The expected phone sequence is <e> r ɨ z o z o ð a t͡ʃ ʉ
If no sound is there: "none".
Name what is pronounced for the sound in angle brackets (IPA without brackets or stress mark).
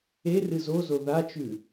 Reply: e